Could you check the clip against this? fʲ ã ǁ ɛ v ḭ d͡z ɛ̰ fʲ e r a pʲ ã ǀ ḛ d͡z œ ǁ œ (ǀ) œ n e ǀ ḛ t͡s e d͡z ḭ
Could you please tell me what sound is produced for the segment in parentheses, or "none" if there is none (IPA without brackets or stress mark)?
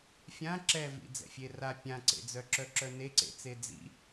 ǁ